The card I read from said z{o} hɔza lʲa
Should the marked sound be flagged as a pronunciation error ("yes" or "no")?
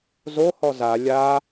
no